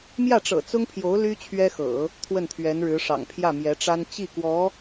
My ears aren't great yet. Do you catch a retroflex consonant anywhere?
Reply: yes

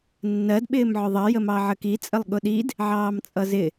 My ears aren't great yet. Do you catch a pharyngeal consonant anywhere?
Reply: yes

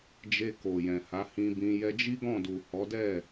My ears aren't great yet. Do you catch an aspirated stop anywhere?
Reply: no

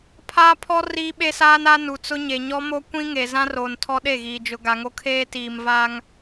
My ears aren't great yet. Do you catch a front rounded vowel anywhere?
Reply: no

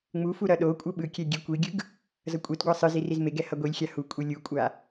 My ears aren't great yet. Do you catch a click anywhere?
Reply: no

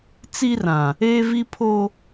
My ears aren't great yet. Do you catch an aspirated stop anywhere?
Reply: yes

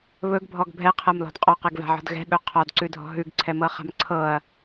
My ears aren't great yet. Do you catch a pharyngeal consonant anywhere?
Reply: yes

